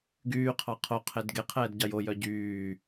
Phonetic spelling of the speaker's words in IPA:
ɡ yː qʰ ɑ qʰ o qʰ e d ɡ e qʰ ɛː d ɟ ɑ j o j œ ɟ yː

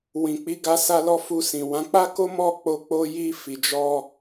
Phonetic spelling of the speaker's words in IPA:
w ĩ˨ k͡p i˨˦ ɡ a˧ s a˧ l ɔ˧ f u˧ s ĩ˨ w ã˨˦ k͡p a˦ k o˦ m ɔ˦˨ k͡p o˧ k͡p o˧ j i˧ f i˨ d͡ʒ ɔ˧

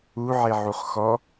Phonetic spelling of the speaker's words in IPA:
u ʕ e ʕ u χ x ɔ

